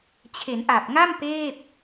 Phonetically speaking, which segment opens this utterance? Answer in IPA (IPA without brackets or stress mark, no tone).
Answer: t͡ɕʰ